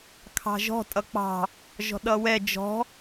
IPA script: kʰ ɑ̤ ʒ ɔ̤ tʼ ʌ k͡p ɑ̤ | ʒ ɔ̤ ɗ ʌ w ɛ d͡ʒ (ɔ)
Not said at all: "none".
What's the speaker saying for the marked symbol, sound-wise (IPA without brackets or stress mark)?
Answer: ɔ̤